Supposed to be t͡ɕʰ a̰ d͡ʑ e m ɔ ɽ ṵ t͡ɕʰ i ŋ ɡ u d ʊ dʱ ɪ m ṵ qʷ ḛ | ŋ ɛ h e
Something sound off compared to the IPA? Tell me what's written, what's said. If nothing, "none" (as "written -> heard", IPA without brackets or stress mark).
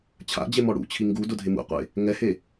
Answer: none